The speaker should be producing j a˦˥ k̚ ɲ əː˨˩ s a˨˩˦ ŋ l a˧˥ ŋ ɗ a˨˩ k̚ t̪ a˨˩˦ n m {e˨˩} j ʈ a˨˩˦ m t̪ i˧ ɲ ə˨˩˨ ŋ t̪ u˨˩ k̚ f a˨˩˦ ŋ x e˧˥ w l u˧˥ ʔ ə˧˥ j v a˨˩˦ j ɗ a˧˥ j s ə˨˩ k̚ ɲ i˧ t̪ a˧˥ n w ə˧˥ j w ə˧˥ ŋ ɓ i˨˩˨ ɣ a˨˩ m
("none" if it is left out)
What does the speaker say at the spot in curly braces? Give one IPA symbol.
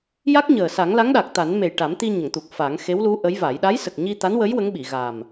e˨˩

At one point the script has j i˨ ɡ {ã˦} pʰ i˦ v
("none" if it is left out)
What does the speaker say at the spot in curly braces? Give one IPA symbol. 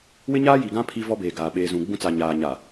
ã˦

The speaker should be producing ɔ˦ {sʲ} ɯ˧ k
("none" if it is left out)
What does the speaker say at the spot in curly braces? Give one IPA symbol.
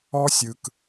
sʲ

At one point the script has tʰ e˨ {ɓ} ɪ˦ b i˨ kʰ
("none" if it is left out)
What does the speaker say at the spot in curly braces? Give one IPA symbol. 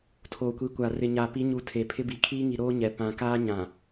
pʰ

